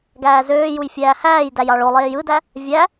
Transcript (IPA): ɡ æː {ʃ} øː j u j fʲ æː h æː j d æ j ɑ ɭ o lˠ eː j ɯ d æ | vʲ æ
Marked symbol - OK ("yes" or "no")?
no